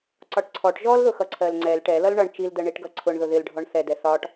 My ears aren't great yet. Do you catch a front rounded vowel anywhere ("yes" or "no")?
no